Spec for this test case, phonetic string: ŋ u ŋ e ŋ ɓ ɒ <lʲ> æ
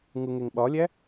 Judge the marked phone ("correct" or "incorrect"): correct